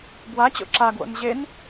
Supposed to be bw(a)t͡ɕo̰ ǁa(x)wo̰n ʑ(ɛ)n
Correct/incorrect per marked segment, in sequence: correct, incorrect, incorrect

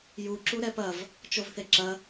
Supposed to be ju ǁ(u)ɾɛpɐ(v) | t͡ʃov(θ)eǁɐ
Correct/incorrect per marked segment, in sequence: correct, correct, correct

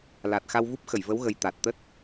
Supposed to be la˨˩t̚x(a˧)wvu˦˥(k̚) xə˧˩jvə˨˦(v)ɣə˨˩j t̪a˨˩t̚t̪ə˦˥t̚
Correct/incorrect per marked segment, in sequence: correct, incorrect, incorrect

